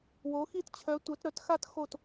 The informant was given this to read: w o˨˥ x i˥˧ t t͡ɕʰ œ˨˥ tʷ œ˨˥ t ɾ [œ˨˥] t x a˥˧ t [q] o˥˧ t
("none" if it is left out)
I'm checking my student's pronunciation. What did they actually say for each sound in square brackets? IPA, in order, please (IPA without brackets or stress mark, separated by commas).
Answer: œ˨˥, x